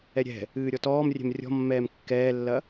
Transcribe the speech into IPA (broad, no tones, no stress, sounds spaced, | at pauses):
ɛ ɾʲ ɛ̤ | ɨː ɾʲ ɔ t ɔː m rʲ ɛ̤ m rʲ ɔ̤ mː ɛː m kː ɛː lː ɐ